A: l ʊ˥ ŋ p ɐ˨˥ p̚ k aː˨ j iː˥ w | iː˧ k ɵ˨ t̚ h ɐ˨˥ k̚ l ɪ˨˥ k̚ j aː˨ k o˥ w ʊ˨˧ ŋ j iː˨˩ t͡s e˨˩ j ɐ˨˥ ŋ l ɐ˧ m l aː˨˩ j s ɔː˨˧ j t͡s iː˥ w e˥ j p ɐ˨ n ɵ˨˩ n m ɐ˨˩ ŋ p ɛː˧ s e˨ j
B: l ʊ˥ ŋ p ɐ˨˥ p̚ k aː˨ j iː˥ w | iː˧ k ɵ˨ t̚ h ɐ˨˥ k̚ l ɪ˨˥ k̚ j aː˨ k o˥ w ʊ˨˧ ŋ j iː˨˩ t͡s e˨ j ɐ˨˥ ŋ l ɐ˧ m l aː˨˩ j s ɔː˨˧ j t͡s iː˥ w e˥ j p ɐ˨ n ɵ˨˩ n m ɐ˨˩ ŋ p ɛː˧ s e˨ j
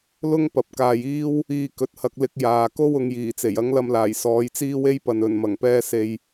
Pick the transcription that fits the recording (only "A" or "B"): A